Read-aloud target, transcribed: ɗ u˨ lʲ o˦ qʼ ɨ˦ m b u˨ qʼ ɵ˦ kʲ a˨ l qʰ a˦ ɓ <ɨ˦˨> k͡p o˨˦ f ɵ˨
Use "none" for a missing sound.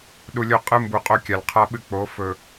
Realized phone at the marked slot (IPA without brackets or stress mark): ɨ˦